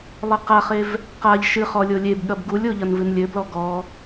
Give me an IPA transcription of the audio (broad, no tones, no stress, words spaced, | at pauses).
lˠɘqaχev | qaʎ ʃɨχ ɔlʲolʲebɠɐb ɡulʲo ʎɐnvɨnlʲɘblɔ ɡɔ